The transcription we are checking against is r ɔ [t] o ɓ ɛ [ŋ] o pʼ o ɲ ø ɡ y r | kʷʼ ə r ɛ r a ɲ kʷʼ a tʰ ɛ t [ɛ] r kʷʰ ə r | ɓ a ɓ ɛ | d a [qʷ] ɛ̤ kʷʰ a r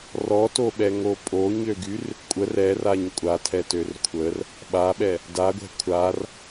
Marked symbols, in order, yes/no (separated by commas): yes, yes, no, no